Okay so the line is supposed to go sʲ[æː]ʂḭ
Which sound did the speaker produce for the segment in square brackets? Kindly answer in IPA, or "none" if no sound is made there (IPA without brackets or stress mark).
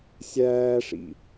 æː